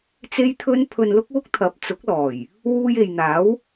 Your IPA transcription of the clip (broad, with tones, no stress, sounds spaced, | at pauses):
t͡s e˥ j t̪ʰ ɵ˥ n pʰ ɵ˧ n l ʊ˥ k̚ w ʊ˥ k̚ t̪ʰ ɐ˨˥ p̚ t͡s ʊ˨˥ k̚ l ɔː˨˩ j | w uː˧ j e˨ j n̪ aː˨˥ w